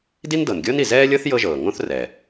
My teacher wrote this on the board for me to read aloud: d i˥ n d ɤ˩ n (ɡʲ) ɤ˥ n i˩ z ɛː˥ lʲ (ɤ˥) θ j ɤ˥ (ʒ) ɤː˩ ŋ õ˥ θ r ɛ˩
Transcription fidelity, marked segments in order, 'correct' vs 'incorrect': correct, correct, correct

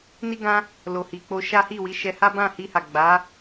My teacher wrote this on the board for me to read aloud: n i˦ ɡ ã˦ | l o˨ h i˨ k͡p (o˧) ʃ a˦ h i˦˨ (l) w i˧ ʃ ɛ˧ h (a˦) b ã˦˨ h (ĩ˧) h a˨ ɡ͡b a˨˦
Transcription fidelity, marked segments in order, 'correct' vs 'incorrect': correct, incorrect: none, correct, incorrect: i˧

